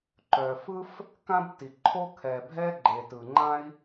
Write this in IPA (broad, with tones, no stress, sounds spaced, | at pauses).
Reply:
ǃ œ˨ f ɯ˦ f | k ã˦ b t i˨ ǃʰ o˦ kʰ ɛ˨ bʱ ɛ˦ ɡ͡ǃ e˨ t ɯ˨ ŋ͡ǃ ã˦ i̯